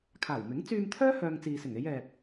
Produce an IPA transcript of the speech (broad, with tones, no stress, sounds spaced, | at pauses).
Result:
kʰ aː˨˩ w m ɪ˨˥ ŋ t͡s yː˧ m t̪ʰ œː˥ h œː˧ ŋ t͡s iː˨ s ɪ˨˩ ŋ e˨˧ j ɛː˨ p̚